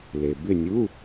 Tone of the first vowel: low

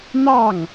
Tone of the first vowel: falling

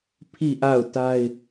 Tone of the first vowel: falling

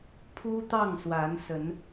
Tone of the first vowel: high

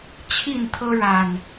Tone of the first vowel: falling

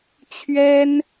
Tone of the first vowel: high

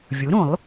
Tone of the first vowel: rising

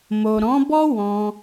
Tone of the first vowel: low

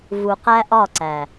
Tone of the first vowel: low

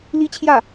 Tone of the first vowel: high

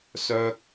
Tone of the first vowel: high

